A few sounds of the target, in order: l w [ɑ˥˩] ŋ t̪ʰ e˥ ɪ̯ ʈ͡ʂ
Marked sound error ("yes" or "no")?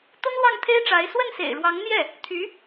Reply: no